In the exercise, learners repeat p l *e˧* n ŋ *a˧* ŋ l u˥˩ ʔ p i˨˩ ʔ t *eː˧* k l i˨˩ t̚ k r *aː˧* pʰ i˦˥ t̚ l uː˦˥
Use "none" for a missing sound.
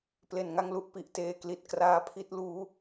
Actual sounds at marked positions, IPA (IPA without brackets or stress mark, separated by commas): e˧, a˥˩, eː˧, aː˦˥